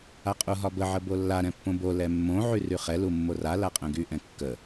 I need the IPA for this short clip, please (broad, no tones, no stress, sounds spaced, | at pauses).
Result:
a qʼ u ɦ ɒ b ə ʕ ə b o lː a ɾ ɛ̃ pː õ b o l ɛ mː õ ʕ y r y χ ɛ l u mː o r a l a qʼ ɛ̃ ɡ y ʔ ɛ̃ kː ə